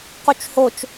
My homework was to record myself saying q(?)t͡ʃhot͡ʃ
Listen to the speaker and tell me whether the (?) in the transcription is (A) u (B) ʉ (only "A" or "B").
A